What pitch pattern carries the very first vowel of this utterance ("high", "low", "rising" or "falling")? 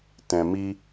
low